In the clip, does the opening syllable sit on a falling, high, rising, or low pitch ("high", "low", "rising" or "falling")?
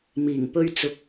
low